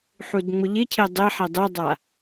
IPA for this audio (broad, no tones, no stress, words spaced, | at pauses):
ħudŋ͡mʊʎɪcʰe dˤɪ ħedˤedˤa